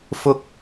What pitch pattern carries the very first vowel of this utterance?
high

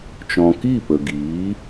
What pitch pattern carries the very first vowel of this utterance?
low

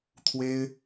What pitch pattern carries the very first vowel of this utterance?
high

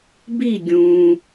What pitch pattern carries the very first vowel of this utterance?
falling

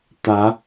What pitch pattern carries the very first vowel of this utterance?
rising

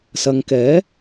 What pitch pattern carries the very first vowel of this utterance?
low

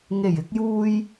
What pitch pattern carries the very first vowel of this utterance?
low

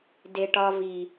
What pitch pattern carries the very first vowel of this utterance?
low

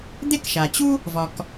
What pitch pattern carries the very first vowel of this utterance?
high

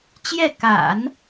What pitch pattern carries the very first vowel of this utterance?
falling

